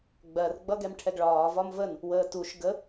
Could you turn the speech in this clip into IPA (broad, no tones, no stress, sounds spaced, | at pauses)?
ɡ͡b ɜ r ɡ͡b ʌ ɡ ɛ m ʈʰ ɛ ɡ ɭ ɒː v ɒ m v ə n | w əː t u ʃ ɡ ə